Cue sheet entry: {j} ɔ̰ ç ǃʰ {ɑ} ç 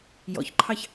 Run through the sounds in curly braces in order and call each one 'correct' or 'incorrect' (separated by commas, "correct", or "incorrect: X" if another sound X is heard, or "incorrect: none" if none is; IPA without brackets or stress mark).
correct, correct